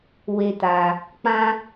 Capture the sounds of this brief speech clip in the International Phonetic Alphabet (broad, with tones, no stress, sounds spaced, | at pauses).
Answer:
w e˧ t a˧ | k͡p ã˦